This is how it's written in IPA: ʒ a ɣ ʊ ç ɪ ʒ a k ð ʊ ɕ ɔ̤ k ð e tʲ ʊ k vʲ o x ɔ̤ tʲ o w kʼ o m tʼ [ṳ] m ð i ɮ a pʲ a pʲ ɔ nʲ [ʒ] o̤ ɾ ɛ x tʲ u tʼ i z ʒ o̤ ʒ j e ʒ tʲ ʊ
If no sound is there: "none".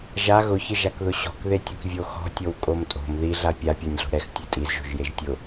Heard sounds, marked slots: o̤, ɮ

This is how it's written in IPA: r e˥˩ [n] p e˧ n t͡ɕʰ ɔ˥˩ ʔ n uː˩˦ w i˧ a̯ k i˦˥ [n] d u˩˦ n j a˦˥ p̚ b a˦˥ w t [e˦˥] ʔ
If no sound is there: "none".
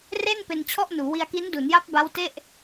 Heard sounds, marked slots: n, n, e˥˩

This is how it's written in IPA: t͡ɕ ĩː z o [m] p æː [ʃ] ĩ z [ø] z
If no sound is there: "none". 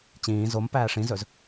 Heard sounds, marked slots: m, ʂ, ɵ

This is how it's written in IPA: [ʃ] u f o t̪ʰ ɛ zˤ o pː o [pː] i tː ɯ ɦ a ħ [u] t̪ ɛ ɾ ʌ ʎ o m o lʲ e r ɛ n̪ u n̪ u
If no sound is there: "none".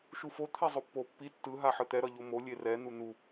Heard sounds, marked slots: ʃ, pː, ɯ

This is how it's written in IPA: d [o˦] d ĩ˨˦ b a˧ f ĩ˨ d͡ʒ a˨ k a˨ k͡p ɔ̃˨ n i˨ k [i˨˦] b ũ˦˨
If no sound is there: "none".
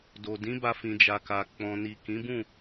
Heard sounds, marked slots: o˨, ĩ˨˦

